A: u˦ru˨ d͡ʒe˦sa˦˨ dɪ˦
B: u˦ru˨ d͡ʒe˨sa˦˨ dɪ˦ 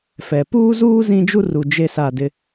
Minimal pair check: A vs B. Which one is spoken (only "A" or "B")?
A